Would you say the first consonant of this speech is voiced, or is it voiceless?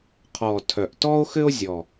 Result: voiceless